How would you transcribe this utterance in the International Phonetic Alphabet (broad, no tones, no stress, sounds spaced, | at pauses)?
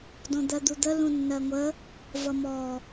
d ɔ̃ d̪ ɜ d̪ u d̪ ə l ũ nː ɜ ŋʷ ə | v ʌ m ɔ